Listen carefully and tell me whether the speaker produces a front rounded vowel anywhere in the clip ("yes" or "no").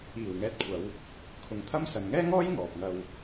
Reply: no